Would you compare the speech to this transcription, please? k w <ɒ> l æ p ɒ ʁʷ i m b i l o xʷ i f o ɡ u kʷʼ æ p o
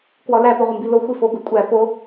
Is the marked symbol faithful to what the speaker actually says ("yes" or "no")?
yes